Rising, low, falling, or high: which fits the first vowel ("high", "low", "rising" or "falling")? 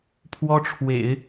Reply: high